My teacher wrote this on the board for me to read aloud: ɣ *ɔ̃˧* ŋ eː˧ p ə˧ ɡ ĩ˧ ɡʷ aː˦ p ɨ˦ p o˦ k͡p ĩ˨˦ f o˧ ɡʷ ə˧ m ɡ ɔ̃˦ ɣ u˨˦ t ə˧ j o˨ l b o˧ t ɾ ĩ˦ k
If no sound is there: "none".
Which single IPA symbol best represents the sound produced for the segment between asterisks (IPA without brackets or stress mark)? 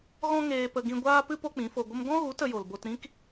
ɔ̃˦